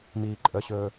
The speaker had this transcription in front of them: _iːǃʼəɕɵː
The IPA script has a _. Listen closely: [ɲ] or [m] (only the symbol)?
m